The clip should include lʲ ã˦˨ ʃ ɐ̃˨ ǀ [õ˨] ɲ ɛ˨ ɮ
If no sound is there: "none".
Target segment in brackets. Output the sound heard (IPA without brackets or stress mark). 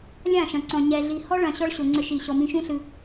ɔ̃˨